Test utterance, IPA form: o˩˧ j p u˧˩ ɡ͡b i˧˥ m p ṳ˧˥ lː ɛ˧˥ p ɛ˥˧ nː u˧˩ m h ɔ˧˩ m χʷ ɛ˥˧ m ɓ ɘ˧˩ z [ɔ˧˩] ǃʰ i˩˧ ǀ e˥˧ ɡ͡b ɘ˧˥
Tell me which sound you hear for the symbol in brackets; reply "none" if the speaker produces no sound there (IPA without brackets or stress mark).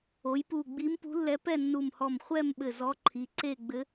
ɔ˧˥